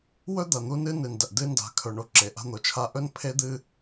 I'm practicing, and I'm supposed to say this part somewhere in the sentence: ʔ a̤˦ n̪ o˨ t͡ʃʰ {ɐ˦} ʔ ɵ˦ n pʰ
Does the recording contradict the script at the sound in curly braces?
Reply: yes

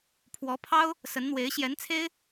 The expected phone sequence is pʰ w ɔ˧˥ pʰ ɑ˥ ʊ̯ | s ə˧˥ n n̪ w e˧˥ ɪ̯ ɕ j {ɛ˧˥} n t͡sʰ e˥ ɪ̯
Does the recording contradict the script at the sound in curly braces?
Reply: no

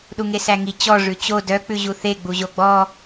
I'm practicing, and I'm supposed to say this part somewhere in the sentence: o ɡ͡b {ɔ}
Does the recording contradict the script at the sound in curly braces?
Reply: no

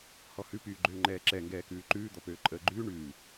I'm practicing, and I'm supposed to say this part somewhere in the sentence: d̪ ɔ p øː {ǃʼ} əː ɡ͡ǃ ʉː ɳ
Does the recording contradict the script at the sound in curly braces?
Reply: no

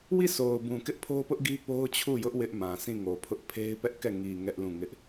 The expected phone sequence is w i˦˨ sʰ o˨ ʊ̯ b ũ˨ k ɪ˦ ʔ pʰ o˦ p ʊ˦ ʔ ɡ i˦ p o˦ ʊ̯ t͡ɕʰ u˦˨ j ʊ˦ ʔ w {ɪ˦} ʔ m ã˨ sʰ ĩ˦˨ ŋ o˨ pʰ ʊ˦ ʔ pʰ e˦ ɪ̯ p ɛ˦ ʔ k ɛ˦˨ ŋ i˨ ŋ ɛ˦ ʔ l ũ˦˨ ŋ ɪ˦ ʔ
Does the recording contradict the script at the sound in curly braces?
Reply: no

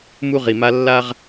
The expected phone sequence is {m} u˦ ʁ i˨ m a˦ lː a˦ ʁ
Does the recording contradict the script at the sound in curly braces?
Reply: no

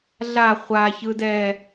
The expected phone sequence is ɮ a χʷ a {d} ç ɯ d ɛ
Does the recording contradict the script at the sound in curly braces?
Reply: yes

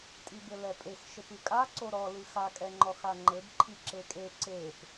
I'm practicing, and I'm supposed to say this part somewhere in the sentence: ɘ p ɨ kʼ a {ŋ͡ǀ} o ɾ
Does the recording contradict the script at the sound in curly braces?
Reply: yes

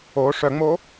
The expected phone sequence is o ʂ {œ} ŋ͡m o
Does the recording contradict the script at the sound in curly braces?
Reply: no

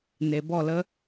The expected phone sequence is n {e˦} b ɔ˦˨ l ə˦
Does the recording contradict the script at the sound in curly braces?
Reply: yes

